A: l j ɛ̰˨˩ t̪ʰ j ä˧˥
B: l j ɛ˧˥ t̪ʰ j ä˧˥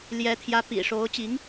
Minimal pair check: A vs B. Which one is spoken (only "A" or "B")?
B